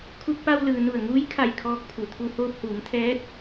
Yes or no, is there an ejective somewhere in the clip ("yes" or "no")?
no